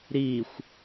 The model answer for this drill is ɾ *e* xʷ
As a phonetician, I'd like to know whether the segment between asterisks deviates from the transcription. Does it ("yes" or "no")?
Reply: yes